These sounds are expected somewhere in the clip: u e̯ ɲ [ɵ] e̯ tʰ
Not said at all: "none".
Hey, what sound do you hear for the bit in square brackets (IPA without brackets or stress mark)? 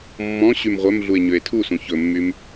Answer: ø